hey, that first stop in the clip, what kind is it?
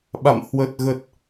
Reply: implosive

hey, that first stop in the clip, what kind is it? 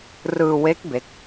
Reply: plain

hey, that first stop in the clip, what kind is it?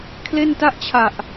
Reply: aspirated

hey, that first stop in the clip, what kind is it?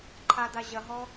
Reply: click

